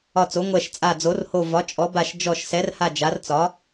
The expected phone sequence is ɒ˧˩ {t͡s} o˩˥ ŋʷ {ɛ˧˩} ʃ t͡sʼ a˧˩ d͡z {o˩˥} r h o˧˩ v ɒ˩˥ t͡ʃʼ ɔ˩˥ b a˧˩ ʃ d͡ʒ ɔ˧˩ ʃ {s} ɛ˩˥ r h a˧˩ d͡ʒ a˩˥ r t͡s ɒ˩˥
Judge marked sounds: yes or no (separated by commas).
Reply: yes, yes, yes, yes